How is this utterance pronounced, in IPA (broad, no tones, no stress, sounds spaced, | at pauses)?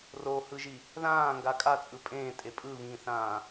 r o h ɯ ʒ i | ð ãː ŋ ɡ a kʼ a t͡sʼ ɯ pʼ ẽː tʼ e pʼ ɯ β ĩː θ ãː